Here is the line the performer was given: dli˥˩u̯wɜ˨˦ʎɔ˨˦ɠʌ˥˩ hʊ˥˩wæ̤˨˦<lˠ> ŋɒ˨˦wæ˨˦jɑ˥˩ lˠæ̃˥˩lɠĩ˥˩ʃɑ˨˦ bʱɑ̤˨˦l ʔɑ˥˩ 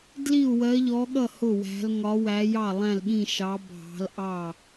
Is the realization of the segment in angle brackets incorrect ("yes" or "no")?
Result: yes